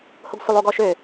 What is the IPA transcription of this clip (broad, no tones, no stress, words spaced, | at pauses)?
hoɡsʷəlˠ oɡɔʃø